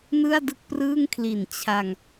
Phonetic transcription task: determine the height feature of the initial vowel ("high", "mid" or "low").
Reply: high